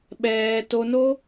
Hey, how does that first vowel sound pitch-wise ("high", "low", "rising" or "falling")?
high